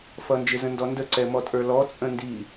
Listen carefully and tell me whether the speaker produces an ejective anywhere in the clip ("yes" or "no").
yes